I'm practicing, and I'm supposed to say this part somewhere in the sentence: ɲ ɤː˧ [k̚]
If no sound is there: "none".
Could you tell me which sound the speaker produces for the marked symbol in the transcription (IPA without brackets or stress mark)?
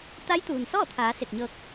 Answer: k̚